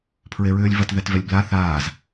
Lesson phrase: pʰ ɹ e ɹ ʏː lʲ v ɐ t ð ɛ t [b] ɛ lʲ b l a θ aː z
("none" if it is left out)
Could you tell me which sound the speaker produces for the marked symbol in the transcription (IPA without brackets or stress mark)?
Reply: v